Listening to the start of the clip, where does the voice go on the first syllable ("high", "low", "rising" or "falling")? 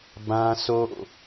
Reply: high